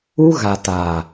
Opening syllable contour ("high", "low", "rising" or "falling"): high